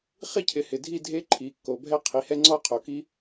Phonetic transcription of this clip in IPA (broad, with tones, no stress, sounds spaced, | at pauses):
χ i˥˧ cʰ ɪ˨˥ h ɪ˩˧˩ dʱ i˥˧ dʱ e˦˥ ǃʰ i˩˧˩ kː o˩˧ bʱ ɛ˥˧ qʰ i˩˧˩ h ɛ˥˧ ŋ͡ǀ ɔ˥˧ qʰ o˩˧ k i˦˥